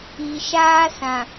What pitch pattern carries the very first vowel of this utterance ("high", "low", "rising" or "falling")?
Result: low